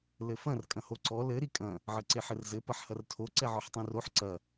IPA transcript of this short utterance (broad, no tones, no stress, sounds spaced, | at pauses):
l ɘ f ɐ̃ r kʼ ɐ̃ h o ǀ ɔ l ɘ ɾ i kʼ ɐ̃ | ʕ ɘ ǀ e ħ ɘ r z ɘ p ɐ ħ h ɐ r tʰ o ǀ ɛ ʕ ɔ ħ tˤ ɛ̃ r o ħ ǀ ɐ